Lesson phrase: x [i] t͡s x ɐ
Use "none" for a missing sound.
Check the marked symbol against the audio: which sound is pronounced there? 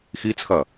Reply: i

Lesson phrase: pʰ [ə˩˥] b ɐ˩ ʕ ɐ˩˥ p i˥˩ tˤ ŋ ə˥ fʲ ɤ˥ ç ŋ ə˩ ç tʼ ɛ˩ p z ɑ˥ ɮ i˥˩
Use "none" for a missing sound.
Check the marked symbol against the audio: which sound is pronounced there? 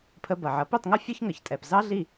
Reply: ə˧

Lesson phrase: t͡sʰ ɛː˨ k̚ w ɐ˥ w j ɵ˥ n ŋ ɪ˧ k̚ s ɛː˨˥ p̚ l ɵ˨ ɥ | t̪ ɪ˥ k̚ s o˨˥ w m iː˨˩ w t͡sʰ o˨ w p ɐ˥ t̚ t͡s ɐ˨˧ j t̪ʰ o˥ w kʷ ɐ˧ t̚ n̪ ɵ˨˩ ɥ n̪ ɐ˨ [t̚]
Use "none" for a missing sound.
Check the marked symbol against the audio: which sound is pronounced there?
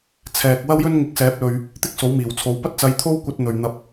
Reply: p̚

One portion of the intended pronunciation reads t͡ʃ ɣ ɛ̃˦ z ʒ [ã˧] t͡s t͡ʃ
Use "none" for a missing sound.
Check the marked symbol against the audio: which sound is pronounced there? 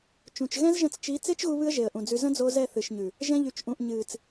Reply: ə̃˧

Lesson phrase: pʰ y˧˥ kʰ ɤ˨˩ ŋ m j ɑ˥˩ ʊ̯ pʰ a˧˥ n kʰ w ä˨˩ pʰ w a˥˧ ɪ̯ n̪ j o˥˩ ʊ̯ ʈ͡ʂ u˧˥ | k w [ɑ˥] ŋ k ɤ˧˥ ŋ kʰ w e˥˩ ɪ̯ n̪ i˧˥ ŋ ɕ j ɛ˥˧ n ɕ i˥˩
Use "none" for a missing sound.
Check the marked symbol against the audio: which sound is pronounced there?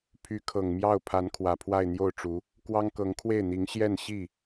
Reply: ɑ˥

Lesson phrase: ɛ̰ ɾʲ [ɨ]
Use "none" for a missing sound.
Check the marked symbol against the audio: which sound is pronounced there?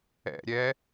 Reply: ɛ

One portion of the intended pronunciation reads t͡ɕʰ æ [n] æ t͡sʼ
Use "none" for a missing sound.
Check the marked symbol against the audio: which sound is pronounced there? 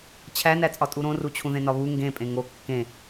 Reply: n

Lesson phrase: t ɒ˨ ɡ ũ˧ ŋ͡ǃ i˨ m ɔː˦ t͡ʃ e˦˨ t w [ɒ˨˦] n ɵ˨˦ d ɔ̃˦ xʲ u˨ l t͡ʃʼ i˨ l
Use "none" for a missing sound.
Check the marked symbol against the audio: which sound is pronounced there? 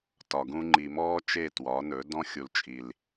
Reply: ɒ˨˦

